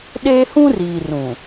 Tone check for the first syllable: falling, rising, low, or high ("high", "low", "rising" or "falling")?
high